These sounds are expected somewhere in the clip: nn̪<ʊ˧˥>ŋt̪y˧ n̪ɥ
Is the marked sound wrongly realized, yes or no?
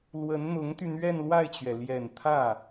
no